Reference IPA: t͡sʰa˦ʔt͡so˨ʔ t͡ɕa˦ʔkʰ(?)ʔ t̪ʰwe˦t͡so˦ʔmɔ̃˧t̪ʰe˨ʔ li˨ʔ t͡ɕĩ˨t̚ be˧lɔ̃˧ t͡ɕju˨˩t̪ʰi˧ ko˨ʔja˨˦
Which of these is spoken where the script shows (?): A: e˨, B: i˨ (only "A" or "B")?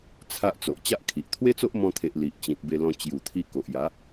B